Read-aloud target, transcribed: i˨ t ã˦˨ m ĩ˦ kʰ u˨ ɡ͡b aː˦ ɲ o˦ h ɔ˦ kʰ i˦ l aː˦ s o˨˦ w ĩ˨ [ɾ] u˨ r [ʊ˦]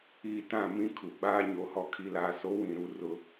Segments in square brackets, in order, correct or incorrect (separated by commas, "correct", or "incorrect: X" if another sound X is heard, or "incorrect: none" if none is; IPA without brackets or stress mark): correct, correct